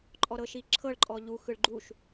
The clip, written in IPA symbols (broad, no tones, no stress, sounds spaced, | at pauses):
ǃʼ ɔ ɾ ɤ ʃ i ǁʰ ɤ ɭ ǃʼ ɔ ʎ u x ɯ ɭ ɡ͡ǃ u ʃ